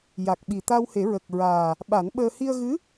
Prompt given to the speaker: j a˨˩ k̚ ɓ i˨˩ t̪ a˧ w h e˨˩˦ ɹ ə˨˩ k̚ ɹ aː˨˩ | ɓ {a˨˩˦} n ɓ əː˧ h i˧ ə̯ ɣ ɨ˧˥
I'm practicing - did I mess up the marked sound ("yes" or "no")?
no